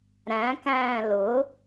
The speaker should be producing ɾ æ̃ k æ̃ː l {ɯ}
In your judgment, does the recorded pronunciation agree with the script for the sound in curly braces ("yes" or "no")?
no